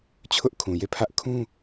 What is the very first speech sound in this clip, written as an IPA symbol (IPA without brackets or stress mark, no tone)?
t͡ɕʰ